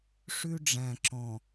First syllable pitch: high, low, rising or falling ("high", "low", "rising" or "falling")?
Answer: high